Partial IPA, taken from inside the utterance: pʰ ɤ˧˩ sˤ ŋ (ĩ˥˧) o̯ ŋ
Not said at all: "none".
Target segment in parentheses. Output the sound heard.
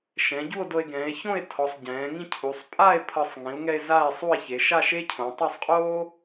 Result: ĩ˩˧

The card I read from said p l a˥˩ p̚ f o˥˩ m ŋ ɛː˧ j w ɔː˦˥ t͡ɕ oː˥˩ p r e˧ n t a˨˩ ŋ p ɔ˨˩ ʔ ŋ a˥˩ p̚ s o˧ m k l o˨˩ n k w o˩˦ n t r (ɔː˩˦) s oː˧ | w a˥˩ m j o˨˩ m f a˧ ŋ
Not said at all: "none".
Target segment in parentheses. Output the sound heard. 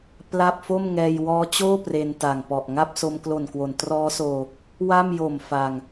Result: ɔː˦˥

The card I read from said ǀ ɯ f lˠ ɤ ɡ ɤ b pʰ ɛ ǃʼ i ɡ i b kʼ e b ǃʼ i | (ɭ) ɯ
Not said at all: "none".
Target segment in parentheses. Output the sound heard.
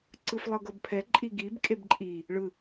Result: ɭ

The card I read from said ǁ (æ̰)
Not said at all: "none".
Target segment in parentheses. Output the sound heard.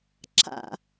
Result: a̰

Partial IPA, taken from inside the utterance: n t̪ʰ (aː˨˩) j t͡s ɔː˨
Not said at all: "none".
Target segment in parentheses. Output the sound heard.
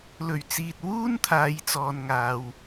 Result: aː˨˧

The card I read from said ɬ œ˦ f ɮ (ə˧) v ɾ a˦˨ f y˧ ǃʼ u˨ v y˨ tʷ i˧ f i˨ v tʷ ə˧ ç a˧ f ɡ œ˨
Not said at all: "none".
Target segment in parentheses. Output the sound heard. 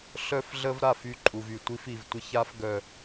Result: ə˦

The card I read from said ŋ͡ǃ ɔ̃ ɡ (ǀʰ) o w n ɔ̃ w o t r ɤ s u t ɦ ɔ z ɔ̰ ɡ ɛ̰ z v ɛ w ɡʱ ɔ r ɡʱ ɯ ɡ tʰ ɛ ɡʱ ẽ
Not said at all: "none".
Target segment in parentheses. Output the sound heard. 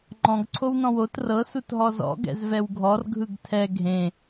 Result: ǀʰ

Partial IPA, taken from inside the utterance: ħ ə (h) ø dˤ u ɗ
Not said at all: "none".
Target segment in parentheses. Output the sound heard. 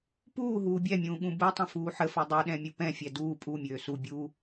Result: f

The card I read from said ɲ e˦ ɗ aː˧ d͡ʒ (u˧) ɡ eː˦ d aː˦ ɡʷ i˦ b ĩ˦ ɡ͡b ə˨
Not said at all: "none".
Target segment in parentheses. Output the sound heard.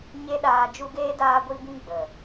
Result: u˧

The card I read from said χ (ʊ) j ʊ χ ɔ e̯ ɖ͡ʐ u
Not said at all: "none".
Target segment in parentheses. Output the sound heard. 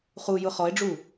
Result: u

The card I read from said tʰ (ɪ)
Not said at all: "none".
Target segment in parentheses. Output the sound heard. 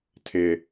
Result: ɪ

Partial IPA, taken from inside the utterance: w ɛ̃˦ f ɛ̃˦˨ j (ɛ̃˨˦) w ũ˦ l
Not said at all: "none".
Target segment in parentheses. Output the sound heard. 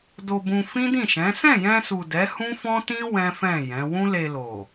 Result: ɛ̃˨˦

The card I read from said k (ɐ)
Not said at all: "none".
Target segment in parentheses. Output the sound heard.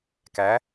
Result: æ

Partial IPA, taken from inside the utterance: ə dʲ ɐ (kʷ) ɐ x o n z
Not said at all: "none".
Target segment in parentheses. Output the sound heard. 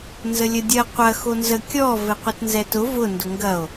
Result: qʷ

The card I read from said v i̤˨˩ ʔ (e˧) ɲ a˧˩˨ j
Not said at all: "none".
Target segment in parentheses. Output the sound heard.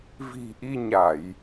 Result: i˧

